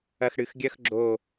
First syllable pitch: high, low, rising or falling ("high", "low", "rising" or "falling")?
low